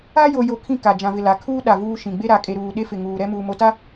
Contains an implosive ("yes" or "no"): yes